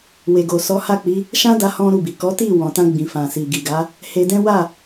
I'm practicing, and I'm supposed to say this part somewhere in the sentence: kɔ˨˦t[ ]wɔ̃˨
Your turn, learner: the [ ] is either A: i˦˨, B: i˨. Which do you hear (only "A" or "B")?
A